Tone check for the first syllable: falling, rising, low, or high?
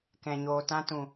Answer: low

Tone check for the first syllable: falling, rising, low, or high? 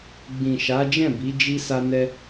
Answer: low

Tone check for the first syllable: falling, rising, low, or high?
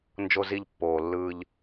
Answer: high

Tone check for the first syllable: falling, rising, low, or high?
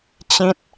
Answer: high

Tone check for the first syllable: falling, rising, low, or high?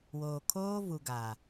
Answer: low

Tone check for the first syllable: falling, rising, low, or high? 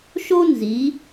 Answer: high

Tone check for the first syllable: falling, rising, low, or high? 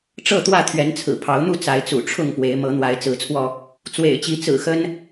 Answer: falling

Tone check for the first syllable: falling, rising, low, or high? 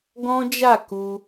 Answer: high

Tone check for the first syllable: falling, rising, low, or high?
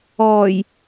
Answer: low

